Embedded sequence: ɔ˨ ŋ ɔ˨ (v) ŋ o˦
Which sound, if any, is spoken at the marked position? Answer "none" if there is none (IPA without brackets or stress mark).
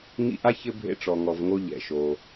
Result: v